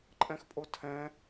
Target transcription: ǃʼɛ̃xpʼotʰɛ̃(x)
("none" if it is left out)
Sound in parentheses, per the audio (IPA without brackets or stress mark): none